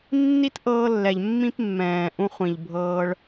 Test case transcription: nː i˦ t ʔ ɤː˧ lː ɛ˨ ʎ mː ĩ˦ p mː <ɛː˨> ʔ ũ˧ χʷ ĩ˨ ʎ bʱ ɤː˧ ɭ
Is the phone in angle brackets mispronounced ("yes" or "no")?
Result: yes